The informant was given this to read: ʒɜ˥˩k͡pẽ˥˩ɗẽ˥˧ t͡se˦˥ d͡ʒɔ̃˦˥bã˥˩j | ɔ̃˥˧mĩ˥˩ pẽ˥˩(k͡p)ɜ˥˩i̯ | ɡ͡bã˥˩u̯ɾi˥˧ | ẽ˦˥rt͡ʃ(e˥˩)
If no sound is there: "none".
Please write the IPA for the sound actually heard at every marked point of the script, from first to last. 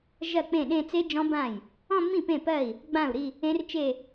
p, e˥˧

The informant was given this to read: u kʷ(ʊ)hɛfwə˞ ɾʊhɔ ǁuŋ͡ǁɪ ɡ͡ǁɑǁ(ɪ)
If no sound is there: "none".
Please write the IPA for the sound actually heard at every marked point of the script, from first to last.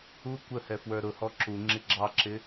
ə, ɪ

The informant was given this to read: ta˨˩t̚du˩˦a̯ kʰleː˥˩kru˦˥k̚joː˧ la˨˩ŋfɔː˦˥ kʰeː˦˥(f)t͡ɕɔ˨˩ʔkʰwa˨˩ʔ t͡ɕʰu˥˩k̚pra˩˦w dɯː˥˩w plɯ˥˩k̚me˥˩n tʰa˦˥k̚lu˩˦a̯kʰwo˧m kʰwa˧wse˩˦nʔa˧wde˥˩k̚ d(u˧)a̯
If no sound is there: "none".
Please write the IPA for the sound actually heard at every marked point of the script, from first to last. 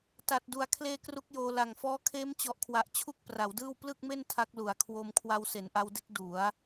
m, u˩˦

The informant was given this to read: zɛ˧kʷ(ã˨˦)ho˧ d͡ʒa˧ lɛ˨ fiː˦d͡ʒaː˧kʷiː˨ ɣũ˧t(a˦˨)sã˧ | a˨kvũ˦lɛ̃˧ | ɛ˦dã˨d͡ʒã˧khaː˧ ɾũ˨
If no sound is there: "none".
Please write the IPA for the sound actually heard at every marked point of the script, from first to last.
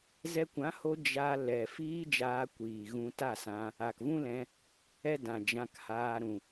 ã˨˦, a˦˨

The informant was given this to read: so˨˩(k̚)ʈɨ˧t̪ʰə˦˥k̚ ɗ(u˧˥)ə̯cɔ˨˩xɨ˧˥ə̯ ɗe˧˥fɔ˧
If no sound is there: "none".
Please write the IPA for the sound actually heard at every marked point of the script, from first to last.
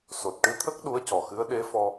t̚, u˧˥

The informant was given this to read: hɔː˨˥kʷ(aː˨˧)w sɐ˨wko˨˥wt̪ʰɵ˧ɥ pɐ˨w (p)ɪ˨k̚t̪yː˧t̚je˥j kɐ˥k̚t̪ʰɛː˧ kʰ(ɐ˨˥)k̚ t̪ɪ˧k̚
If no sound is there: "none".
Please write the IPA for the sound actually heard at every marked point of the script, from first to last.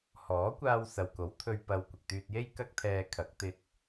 aː˧, kʷ, ɐ˨˥

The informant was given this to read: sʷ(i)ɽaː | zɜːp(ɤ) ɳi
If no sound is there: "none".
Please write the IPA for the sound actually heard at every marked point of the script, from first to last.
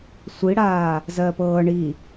i, ɤː

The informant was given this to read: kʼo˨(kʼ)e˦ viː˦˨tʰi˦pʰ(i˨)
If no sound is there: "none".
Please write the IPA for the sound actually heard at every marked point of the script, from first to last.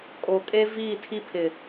kʼ, ɪ˨

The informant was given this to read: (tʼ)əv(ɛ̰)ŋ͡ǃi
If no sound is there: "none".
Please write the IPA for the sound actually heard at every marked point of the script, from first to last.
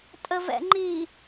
tʼ, ɛ̰

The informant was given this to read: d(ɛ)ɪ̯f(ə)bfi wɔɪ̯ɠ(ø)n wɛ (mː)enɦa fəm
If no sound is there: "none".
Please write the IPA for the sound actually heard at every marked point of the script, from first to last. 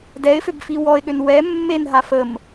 ɛ, ø, ø, mː

